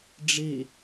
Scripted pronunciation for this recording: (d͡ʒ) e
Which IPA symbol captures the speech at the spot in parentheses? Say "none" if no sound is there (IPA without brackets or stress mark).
ɖ͡ʐ